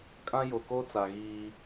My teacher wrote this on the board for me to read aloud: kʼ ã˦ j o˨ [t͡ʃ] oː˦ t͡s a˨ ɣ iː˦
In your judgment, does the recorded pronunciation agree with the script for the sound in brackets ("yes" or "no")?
no